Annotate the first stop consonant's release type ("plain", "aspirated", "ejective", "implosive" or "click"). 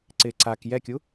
click